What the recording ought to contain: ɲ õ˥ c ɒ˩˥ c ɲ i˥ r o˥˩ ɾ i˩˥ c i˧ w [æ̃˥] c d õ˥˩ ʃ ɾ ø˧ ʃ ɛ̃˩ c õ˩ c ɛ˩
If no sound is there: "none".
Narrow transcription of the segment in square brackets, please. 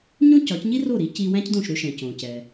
æ̃˥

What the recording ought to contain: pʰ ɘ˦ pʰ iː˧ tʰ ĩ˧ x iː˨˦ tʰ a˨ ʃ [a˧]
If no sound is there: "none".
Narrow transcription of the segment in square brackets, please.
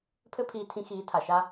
a˧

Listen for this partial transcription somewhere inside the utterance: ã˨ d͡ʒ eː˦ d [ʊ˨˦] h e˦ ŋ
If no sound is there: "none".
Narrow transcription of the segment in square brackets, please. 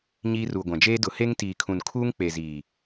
ʊ˨˦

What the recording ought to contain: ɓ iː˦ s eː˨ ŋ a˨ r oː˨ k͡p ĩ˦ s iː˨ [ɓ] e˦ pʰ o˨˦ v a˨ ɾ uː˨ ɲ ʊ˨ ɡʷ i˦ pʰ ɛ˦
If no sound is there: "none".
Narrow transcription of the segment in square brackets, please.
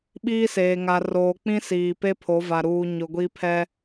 p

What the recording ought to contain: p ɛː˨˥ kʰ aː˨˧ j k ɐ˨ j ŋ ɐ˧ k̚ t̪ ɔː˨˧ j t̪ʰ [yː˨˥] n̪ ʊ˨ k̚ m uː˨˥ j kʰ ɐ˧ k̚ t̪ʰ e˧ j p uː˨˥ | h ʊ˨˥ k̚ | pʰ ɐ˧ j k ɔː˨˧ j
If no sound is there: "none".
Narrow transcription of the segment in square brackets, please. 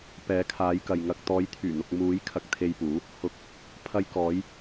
yː˨˩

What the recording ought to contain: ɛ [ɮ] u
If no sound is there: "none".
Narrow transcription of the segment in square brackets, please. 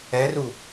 r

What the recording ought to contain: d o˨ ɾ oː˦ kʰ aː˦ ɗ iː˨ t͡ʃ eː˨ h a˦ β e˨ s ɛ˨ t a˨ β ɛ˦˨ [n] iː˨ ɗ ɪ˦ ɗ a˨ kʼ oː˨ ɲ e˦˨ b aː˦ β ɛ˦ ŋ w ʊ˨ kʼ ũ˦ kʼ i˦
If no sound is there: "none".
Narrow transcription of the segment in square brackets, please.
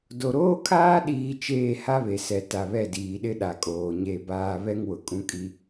d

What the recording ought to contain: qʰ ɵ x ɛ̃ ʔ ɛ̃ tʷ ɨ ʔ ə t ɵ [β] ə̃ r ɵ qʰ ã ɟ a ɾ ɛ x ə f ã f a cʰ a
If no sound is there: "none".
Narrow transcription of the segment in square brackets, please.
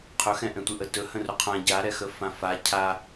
h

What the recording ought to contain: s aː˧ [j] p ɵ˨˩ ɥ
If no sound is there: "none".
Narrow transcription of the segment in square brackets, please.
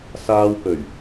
w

